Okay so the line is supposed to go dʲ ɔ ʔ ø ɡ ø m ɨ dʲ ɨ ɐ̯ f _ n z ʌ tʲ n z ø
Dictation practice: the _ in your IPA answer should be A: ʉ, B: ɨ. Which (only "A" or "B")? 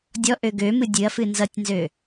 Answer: B